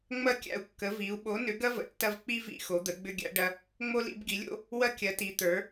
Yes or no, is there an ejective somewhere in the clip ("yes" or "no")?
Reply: no